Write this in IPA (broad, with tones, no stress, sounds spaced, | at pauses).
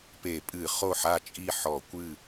p e˧˩˧ pʼ ɨ˧˩˧ χ o˥˩ ħ a˥˩ t͡ʃʼ i˥˩ ħ ɔ˧˩˧ kʷ ɨ˥˩